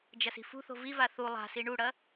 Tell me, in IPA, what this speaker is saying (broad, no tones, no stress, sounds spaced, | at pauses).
d͡ʒ ɐ s i̤ f ṳ θ o̤ v i v a θ u lˠ a̤ s i ɳ u ɽ ɐ